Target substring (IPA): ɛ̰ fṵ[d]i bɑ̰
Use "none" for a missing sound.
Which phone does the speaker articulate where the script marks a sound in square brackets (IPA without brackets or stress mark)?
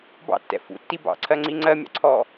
tː